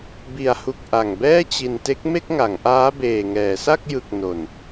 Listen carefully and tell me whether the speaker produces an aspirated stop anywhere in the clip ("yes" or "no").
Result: no